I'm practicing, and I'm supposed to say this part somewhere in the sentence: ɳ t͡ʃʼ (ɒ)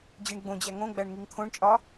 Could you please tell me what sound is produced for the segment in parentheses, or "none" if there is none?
ɒ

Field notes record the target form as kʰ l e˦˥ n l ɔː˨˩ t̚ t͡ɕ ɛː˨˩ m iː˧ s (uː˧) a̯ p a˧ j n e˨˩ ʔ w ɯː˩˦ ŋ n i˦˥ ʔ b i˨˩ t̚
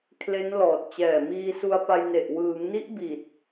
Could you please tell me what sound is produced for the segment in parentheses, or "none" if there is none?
u˧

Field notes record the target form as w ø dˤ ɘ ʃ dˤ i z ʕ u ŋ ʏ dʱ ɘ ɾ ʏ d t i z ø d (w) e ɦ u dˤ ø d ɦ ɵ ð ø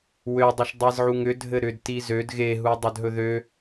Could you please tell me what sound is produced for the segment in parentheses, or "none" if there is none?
ɣ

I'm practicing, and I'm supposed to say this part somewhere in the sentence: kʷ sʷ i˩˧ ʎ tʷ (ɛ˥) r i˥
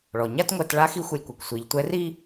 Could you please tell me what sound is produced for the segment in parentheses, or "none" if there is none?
ɛ˧˥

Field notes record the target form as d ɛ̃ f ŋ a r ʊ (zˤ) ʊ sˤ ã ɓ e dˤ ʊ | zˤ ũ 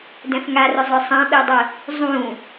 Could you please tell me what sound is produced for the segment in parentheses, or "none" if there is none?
zˤ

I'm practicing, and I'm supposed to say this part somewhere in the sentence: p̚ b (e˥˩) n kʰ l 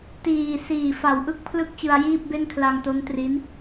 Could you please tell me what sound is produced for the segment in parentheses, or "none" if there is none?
e˥˩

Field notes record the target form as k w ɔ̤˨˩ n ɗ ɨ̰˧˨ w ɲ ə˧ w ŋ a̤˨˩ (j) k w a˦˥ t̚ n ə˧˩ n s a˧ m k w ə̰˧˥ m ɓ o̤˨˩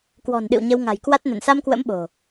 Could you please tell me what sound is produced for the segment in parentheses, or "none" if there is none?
j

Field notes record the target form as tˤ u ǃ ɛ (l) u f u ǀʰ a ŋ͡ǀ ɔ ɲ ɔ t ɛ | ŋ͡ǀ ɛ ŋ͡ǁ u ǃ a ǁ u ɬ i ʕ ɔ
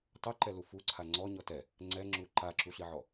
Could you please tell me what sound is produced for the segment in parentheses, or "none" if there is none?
l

